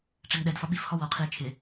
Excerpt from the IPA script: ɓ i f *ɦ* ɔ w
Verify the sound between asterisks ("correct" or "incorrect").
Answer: incorrect